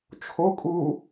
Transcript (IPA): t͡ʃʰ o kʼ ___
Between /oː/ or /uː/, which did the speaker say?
uː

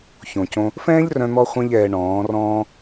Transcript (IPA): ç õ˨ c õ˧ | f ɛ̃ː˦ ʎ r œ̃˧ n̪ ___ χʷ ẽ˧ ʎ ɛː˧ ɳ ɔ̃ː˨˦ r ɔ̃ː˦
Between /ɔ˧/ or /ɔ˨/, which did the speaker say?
ɔ˧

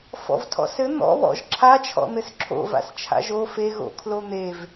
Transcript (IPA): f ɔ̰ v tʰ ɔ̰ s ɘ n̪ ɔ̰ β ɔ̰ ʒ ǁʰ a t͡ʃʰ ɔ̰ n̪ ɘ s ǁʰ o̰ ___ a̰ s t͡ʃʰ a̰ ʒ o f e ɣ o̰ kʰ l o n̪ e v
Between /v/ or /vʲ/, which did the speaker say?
v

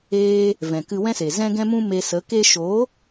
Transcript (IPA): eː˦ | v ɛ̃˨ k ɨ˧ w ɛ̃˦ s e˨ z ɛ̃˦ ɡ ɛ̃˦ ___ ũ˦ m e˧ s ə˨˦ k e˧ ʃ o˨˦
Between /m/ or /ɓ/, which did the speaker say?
m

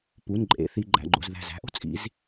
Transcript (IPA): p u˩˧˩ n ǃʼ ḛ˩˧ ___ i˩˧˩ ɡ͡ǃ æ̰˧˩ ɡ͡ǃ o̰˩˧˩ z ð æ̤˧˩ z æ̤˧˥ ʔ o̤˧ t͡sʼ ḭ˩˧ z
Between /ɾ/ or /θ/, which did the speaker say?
θ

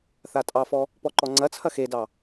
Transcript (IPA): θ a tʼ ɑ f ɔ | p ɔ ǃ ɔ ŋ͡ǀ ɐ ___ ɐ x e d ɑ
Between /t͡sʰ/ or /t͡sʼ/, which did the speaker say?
t͡sʰ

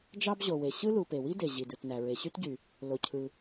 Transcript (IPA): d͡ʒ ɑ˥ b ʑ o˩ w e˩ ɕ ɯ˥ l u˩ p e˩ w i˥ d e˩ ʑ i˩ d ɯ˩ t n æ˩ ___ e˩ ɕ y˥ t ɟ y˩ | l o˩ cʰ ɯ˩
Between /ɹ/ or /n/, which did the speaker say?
ɹ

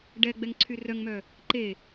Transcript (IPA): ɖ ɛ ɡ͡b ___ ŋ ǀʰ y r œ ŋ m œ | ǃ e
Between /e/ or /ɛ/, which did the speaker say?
ɛ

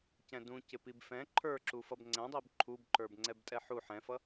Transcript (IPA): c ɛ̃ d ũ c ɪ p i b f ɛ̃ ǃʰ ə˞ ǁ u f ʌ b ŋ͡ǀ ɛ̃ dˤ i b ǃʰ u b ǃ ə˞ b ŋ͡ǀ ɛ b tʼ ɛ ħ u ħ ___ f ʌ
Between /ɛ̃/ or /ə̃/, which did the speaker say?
ɛ̃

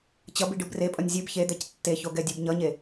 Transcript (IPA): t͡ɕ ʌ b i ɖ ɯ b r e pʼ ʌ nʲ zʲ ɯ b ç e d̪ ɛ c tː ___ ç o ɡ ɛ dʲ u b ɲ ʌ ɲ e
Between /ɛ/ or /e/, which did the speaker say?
e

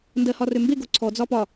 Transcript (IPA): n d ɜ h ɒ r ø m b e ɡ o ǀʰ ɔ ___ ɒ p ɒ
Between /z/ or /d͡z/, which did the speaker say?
d͡z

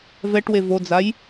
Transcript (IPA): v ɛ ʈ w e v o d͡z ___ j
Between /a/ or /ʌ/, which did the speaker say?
a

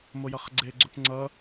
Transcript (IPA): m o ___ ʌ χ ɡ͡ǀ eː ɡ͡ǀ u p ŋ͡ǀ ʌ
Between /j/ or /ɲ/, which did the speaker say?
j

